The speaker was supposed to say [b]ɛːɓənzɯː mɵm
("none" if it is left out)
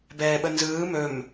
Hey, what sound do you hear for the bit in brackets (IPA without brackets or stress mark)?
b